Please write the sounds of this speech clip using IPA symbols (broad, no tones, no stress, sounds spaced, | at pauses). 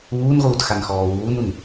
uː n ʁ uː t x a n x ɔː w uː n u n